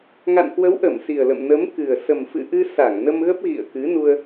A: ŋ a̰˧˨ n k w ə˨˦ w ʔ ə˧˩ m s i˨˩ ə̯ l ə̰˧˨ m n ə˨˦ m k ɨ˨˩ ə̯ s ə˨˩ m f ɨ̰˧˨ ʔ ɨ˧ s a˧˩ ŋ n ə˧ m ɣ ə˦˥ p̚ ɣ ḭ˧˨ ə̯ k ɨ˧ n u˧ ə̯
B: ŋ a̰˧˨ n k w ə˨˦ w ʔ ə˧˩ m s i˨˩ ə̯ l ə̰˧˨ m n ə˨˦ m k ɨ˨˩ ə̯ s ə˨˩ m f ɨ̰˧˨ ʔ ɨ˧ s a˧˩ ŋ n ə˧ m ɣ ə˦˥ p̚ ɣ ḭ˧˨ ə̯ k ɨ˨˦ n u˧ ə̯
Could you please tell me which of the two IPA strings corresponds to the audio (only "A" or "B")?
B